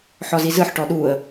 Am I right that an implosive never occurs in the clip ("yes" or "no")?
no